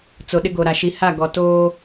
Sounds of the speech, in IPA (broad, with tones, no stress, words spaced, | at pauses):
t͡so˨ɗɪ˦ɡo˨ɾa˨ ʃi˨ha˦˨ɡɔ˨ toː˦